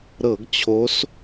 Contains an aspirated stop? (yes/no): yes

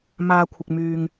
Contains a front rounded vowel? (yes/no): yes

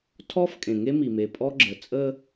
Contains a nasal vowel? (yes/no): yes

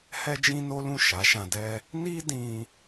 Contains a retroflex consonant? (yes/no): no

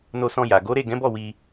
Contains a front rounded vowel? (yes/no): no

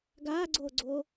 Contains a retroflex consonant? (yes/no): no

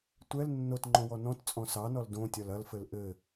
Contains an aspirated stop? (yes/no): no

